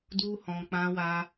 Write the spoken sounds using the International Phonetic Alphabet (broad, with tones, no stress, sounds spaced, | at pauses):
d u˦ h ɔ̃˧ k͡p ã˦ w a˦